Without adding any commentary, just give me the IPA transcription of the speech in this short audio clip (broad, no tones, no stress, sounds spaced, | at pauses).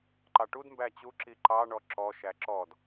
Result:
ǃ ɑ ʈ u d m b æ t͡ɕ u ǁ i ǃ ɑ ɳ ɔ ǁ ɔ ʃ æ ǁ ɔ d